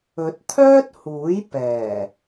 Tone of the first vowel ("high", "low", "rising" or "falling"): rising